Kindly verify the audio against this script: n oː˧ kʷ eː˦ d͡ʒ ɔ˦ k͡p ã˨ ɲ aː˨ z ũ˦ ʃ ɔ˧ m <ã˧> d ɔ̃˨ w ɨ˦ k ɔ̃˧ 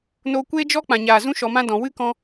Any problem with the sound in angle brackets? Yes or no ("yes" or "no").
yes